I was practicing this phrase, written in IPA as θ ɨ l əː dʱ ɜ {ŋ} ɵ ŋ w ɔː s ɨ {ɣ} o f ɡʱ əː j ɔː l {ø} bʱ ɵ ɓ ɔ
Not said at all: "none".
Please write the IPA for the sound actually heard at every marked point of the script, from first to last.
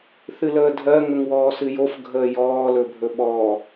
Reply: ŋ, j, ɵ

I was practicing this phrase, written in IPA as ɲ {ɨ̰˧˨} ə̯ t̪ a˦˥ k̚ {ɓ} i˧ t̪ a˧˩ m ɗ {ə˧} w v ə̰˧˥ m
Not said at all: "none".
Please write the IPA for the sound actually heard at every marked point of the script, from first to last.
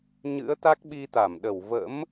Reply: ɨ̰˧˥, ɓ, ə˧˩

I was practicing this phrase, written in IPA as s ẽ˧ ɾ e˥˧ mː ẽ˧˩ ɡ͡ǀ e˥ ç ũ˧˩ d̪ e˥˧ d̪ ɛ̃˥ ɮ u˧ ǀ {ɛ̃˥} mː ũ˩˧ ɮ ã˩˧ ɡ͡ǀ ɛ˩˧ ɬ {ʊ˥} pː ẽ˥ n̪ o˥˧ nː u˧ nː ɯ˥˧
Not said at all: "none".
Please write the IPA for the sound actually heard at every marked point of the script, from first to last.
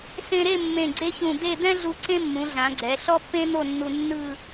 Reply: ẽ˥, ɔ˥

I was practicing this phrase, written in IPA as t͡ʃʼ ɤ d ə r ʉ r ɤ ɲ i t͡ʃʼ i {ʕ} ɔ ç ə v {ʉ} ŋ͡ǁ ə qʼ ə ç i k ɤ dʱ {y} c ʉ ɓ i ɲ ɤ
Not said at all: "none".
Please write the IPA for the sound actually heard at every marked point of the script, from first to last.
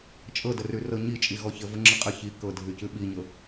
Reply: ɣ, ə, y

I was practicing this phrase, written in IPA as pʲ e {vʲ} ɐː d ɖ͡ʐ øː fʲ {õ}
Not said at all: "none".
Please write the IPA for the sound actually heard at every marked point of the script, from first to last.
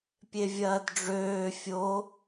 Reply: vʲ, o

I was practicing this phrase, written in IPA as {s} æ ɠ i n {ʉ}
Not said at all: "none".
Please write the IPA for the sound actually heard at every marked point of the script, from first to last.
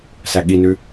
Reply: s, ʉ

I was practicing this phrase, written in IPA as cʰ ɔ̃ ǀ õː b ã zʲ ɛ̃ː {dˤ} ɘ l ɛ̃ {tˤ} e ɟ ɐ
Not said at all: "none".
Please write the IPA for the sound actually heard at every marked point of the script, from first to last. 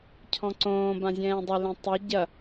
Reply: dˤ, tˤ

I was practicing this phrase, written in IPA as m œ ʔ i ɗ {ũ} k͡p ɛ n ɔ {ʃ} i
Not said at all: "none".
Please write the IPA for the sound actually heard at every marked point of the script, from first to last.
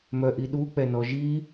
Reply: u, ʒ

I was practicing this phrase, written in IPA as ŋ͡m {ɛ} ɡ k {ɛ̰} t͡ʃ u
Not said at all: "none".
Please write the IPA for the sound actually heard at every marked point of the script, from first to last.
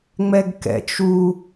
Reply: ɛ, ɛ̰

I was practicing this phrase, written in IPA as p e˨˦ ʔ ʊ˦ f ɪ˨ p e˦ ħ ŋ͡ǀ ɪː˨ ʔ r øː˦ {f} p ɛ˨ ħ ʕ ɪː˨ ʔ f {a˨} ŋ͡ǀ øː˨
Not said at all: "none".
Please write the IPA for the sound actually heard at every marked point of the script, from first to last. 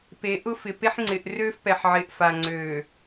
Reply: f, a˨

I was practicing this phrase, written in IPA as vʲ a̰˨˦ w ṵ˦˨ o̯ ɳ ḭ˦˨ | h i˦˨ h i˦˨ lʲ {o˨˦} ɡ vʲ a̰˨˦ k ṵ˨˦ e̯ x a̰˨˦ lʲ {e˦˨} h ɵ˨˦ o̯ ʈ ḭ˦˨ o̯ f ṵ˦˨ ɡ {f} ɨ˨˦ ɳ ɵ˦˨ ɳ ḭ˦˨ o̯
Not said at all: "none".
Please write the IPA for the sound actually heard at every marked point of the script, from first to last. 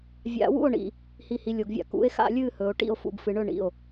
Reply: o˨˦, ɨ˦˨, f

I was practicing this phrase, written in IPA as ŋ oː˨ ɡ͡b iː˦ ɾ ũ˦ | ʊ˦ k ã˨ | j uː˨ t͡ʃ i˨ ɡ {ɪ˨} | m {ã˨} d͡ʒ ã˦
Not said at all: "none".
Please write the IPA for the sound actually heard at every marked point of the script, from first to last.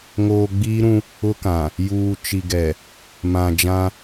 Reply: ɛ˨, ã˨

